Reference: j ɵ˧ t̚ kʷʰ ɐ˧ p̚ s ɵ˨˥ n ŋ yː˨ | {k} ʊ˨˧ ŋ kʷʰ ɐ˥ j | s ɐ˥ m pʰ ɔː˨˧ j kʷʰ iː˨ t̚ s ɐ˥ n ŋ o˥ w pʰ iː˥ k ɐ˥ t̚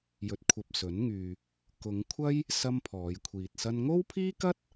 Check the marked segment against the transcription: correct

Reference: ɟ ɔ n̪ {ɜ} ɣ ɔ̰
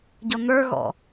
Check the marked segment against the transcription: incorrect: ə˞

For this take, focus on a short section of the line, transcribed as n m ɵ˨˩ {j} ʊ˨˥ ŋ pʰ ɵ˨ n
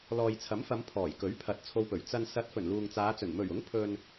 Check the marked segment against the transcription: incorrect: ɥ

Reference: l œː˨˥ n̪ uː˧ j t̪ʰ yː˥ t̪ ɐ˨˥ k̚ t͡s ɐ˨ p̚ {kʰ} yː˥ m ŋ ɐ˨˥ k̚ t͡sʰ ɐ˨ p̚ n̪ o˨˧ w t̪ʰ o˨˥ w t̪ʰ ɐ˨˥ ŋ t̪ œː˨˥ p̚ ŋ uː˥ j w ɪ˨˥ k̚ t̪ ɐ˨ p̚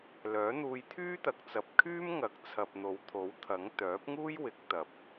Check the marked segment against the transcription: correct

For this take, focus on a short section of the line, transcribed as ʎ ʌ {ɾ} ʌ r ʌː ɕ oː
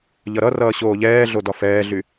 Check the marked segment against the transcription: correct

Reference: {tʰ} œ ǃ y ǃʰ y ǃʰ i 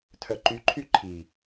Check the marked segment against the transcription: correct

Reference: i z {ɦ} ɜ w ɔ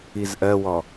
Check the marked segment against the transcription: incorrect: ʔ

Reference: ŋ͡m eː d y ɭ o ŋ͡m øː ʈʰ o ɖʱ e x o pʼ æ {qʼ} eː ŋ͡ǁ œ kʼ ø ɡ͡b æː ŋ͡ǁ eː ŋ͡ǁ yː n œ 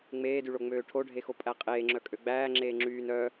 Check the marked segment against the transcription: correct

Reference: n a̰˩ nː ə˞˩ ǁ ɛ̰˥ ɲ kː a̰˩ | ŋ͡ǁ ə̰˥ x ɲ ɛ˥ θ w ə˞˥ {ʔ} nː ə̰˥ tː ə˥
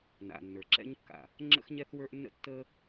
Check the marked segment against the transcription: correct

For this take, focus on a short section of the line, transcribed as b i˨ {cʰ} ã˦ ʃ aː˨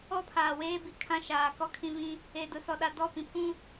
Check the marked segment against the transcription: incorrect: kʰ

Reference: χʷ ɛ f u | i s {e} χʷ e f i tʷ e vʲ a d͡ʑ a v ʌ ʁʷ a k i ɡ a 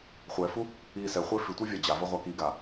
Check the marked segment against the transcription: incorrect: ɛ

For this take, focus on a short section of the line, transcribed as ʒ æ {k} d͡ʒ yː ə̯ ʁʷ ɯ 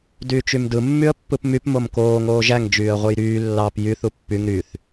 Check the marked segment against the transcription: incorrect: ŋ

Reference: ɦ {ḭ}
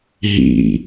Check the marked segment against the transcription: correct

